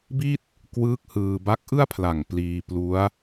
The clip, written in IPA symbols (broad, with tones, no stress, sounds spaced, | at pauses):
b i˥˩ t̚ | k w ɯː˦˥ k̚ h ɯː˧ b a˦˥ k̚ ʔ ɯ˥˩ a̯ pʰ l a˨˩ ŋ p l iː˧ p l u˦˥ a̯